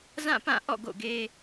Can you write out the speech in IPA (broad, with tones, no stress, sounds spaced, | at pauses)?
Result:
z ã˦˨ p ã˦˨ ʔ ɔ̰˦˨ ɡ o̰˦˨ ɡ e˦